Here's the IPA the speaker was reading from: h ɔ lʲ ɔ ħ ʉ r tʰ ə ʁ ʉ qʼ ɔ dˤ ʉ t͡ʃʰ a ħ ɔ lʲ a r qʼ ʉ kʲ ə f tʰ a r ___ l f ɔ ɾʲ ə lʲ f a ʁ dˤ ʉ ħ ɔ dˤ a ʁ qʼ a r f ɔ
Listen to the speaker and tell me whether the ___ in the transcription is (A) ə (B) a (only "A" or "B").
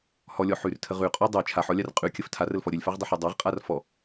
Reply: A